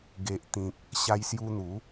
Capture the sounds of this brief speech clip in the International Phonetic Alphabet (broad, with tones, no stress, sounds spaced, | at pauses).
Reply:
ɡ e˨ ʔ t̪ ĩ˨ k̚ | ɕ a˧ j s j u˧ n̪ u˨˦